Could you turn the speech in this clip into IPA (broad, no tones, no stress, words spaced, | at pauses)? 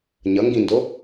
ɲʌŋɡĩndo